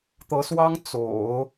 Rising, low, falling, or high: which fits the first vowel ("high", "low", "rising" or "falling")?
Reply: rising